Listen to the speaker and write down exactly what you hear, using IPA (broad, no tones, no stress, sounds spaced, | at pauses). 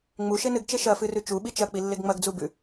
ŋ͡m u ʃ e n ɨ ɡ t͡ʃ e ʃ ɐ f ɨ r ʉ t͡ʃ u ɓ i t͡ʃ ɐ k͡p i lː e ɡ ŋ͡m ɐ ɡ d͡z u b ʉ